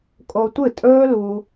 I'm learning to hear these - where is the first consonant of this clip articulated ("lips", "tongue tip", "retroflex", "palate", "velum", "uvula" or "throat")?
velum